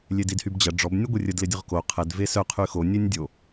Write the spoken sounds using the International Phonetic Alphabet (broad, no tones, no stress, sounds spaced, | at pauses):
lʲ e d i d h y b d͡ʑ ɐ ɖ͡ʐ ɔ b nʲ ə ɡʷ e rʲ ə d l ɪ dʲ ʊ ʁ k o qʰ ɛ d v e s œ qʰ y x o nʲ e nʲ dʲ o